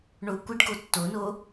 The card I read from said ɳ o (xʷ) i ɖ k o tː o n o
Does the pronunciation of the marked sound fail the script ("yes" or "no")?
yes